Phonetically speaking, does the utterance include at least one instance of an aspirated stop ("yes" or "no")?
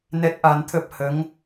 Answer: yes